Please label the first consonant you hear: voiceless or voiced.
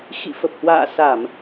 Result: voiceless